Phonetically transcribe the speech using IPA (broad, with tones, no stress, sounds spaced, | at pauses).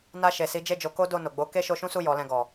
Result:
n a˧ ʃ e˨ s i˨˦ d͡ʒ e˦˨ d͡ʒ o˨˦ k o˦ d o˦˨ n o˨ ɡ͡b o˨˦ k e˦ ʃ o˧ ʃ ũ˦ s u˦˨ j ɔ˨˦ l ɛ̃˧ ɡ ɔ˨